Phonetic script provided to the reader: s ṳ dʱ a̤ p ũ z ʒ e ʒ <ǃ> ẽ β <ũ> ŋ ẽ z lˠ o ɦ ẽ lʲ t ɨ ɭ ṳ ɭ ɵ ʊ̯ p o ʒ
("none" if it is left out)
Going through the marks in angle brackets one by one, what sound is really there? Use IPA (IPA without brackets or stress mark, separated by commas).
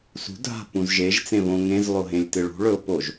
t͡s, õ